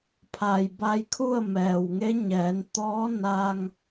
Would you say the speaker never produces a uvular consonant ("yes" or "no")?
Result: yes